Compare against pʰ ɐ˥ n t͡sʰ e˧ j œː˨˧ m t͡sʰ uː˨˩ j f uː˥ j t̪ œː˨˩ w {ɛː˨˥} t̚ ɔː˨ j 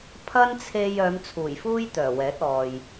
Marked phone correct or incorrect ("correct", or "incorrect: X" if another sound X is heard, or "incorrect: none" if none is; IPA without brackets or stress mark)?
correct